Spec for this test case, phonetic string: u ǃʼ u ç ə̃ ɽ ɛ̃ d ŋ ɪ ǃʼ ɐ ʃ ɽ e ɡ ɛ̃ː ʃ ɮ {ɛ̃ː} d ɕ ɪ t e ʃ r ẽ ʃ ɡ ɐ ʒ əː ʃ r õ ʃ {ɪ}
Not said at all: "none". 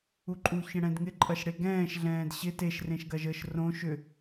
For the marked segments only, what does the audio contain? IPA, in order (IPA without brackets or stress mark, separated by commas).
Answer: ɛ̃ː, ʏ